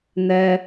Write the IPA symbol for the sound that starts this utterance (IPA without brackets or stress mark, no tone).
n